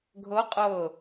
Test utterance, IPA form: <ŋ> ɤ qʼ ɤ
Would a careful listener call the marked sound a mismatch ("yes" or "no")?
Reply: yes